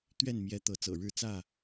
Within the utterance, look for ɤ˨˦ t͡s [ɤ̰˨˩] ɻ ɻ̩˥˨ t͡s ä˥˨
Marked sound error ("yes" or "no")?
no